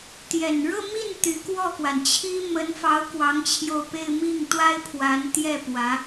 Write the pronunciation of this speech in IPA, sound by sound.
t̪jɛ˨˩n ɻɤ˥˧mi˥˩n t̪y˧˥ kwɔ˥˩kwa˩nt͡ɕʰi˥ mə˧˥nfɑ˧˥ʊ̯ kwɑ˧˥ŋt͡ɕʰjo˧ʊ̯pe˥˧ɪ̯ mi˥˩ŋt̪wa˥ɪ̯ pʰwa˧˥nt̪jɛ˥˩ pwä˧˥

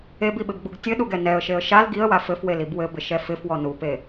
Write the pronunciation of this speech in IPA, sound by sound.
ebiɓɪbɡ͡buɡ tʲɘɗuɡɛ nɛə̯ʃeə̯ ʃal ɡiə̯wa fɘfwelib wɘbɪʃɛ fɪfwɔ nupe

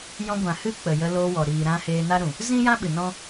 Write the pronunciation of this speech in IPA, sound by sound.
jɔ̃˧ɡʷã˨ hɨ˦k͡pə˨ jə˧lo˧wɔ˨ ɾiː˨ɾã˧ heː˧na˦ɾũ˨ | zĩ˦jã˦ ɓɨ˨nɔ̃˦

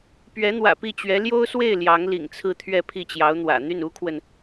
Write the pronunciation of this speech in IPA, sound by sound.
pɥɛ˧˥n̪wä̰˨˩pi˥˩t͡ɕɥɛ˧˥ ljo˥ʊ̯swe˥˩ɪ̯ ljɑ˧˥ŋlḭ˨˩ŋt͡sʰɹ̩˥˧ t̪ʰɥɛ˥˧pʰi˥˩t͡ɕjɑ˧˥ʊ̯n̪wä̰˨˩ n̪y˥˩nu˥kʰwə˨n

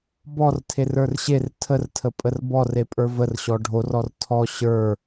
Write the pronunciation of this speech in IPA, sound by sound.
bɔrtʰer ə˞rɕer tʰərtʰə pʼərbɔr epʼə˞vərɕɔ ɖʱorɔr tʰɔ ɕə˞

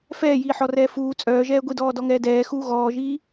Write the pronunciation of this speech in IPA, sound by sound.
fɛːjiːħɔrɛː fuː t͡sʼœːʒɛː ɡʷidɔːdɔŋɛː dɛːxuː ɣɔːʒiː

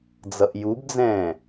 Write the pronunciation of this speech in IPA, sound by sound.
d͡zʌʔjubd͡zɛ̃ː

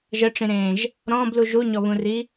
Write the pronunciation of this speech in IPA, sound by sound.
ʒəʈ͡ʂĩɾẽːʒ | ɾɔ̃ːblu ʒuɲɔβũri

